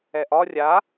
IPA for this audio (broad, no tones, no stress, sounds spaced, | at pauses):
ɛ ʔ ɒ rʲ a